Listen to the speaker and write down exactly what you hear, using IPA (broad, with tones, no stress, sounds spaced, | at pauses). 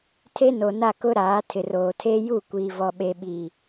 tʰ e˦ n o˨ n a˦˨ k ʊ˦ ɾ aː˨˦ tʰ ɪ˨ r oː˨ tʰ eː˦ j u˦˨ kʷ iː˨ v ɔ˨ ɓ e˨ ɓ iː˨